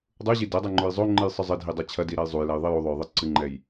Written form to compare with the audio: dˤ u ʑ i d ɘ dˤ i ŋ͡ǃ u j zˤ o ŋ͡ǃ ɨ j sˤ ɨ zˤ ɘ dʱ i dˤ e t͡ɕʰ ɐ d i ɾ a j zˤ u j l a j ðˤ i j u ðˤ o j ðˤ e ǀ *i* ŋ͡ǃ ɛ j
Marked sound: incorrect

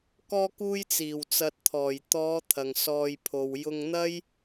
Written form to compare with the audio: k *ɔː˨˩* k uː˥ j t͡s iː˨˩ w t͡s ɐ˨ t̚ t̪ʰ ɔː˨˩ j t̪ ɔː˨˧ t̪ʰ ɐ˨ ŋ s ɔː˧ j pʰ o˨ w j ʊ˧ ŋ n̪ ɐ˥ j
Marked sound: incorrect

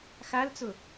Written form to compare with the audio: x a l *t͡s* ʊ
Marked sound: correct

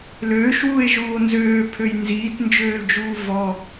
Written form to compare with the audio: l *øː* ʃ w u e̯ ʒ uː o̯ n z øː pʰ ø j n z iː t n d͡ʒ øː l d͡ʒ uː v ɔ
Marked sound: correct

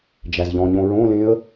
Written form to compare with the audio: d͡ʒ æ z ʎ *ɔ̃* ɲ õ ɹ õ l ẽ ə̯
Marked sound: correct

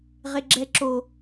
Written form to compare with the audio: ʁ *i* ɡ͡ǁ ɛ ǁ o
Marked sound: incorrect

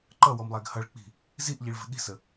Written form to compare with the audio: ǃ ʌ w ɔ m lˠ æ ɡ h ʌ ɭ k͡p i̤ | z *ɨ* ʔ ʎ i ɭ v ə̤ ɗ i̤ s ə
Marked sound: incorrect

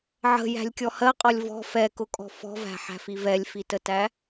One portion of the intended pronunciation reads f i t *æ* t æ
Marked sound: incorrect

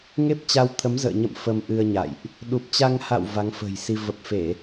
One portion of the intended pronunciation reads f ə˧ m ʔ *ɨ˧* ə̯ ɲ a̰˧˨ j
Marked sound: correct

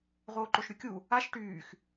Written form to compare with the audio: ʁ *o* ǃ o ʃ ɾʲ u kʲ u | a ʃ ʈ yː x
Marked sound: incorrect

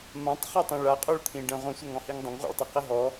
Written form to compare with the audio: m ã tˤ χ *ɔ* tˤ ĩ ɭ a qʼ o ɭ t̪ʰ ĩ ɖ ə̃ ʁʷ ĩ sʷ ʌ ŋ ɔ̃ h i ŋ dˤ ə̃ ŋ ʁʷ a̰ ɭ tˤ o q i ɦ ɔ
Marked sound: incorrect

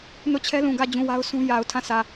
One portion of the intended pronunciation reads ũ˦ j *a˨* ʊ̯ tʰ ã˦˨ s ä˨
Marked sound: correct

